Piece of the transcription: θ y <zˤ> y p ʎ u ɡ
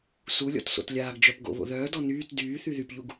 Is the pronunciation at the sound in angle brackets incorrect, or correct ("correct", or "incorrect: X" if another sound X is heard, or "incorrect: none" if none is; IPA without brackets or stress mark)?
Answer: incorrect: ð